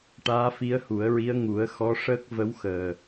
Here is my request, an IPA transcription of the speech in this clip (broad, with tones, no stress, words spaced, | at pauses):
ʈaː˧˥fi˧˥ə̯hu˨˩˦ə̯ɹi˧˥ə̯ ŋu˨˩˦ə̯ xɔ˧˥ʂəː˦˥k̚ və˧˥wxəː˨˩